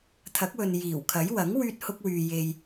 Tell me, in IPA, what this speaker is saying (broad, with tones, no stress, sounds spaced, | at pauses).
t̪ʰ ɐ˨˥ k̚ w ɵ˨ n j iː˨˩ w kʰ ɐ˨˥ j w ɐ˨˥ ŋ w yː˥ t̚ h ʊ˥ k̚ w yː˧ j e˧ j